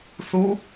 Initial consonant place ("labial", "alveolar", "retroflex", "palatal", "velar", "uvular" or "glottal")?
alveolar